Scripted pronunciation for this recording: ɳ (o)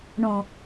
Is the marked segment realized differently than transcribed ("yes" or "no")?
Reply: yes